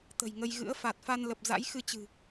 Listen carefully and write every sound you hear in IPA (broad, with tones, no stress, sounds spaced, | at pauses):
t̪ ə̤˨˩ j ŋ ə˧ j ɣ ɨ̰˧˥ ə̯ f a˨˩ t̚ f a˧ n l ə˨˩ p̚ z a̰˧˥ j x ɨ˧ t͡ɕ ɨ̤˨˩